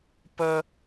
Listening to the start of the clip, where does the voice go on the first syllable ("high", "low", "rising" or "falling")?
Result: high